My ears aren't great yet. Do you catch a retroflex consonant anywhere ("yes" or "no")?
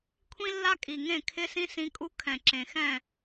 no